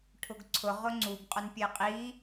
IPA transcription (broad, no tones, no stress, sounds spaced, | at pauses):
ʈʰ ʊ ɡ ǀʰ ʊ ʁ ʊ ŋ͡ǀ u ɡ qʼ ʊ n pʲ e qʼ i